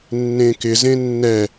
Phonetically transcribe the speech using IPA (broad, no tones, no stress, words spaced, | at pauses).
nːẽkɪ zẽnːɛ